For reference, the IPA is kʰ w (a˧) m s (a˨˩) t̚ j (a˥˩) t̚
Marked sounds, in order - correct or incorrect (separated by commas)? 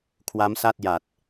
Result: incorrect, incorrect, incorrect